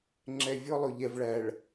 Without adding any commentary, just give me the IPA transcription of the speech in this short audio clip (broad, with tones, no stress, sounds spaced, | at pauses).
ŋ͡ǁ ɛ˨ vʲ ɔ˦ lˠ ʊ˨ ʎ ɛ˨ v ɭ æ˨ ɭ